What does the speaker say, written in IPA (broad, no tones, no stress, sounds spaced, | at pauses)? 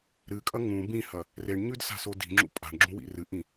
ɾ ɨ kʼ ɐ ŋ ũ b ĩ h ɐ | r e ɳ ɲ ʉ d s a̤ s o d i̤ ŋ͡ǁ ṵ pʼ a̤ ɳ ɡ͡ǁ ũ w ḭ r ɨ ʔ ĩ